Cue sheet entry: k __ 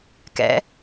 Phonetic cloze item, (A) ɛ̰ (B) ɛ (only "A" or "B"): A